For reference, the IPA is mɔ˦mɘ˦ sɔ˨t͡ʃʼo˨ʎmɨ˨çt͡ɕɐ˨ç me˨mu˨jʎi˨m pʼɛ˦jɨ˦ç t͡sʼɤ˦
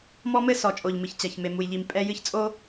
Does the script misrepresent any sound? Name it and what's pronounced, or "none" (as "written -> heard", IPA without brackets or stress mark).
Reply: ɤ˦ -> o˦